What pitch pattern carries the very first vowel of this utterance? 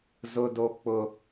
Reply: high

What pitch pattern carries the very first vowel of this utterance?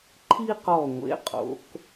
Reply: high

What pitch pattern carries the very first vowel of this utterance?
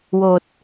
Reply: low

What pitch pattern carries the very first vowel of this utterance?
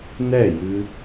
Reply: falling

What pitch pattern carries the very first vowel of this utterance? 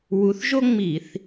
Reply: rising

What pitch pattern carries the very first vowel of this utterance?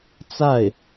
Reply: falling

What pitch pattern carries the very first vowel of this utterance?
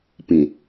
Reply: low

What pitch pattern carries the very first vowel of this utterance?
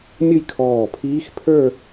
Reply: falling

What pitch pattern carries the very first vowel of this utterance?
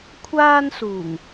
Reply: high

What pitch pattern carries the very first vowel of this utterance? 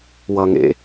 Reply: low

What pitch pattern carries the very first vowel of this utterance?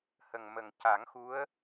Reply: low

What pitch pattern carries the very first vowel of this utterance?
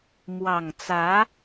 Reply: low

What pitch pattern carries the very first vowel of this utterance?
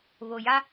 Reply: low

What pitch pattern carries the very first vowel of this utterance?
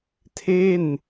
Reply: falling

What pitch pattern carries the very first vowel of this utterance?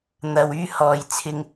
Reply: low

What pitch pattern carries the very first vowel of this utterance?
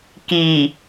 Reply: low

